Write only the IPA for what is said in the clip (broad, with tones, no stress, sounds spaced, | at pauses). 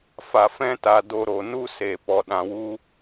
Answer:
f a˨ f ɛ̃˧ t a˨ d o˧ ɾ o˨ n u˦ s e˨ p ɔ˨ ɗ ã˨ w u˧